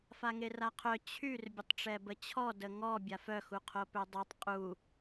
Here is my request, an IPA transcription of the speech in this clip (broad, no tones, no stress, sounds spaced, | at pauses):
f a ŋ e r a qʰ œ t͡ɕʰ y r bʲ ə tˤ ʈ͡ʂ ɛ b ə t͡ɕʰ ɔ d ə ŋ ɔ bʲ a f œ x u qʰ o p ø dˤ o tˤ qʼ u